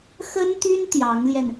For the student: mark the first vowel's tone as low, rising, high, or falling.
high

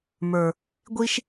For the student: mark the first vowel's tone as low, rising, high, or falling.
low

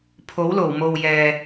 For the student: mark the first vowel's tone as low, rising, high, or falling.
rising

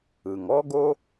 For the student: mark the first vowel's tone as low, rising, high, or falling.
low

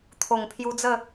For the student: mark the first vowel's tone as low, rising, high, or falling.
low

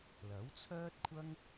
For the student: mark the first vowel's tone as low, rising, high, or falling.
rising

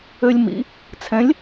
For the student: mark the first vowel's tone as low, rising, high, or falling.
high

